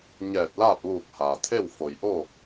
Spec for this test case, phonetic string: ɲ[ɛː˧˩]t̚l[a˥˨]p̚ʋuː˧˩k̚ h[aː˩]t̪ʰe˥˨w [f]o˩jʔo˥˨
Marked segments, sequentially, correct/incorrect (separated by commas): correct, incorrect, correct, correct